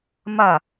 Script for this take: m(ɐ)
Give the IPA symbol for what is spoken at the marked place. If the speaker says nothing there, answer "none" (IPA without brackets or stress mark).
ɐ